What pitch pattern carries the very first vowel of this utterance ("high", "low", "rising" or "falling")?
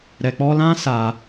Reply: low